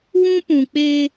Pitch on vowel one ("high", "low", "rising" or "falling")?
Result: high